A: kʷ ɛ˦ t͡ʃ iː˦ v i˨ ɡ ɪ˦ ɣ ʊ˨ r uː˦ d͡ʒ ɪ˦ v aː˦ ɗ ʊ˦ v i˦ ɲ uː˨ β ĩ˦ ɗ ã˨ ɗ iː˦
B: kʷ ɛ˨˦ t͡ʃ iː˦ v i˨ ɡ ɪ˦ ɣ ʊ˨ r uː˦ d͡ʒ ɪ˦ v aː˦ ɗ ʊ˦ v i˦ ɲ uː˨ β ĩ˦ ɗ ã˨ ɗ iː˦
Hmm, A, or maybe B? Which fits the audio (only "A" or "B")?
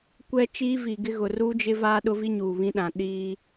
A